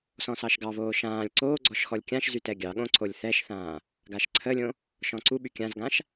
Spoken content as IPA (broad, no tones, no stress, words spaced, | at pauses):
sɔ̃sɑʃɡɑβoː ʃãːlʲ ǀoːɡ͡ǀɔʃ xɔlʲkʲãʃzy tɛɡʲɑɠõ ǀolʲθɛʃθãː | ɡaʃǀʰəlʲõ | ʃɔ̃ǀuɓy kʲãzɡãʃ